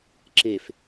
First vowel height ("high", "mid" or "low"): mid